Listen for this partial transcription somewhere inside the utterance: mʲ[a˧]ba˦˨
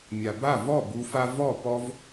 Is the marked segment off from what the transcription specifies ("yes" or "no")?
yes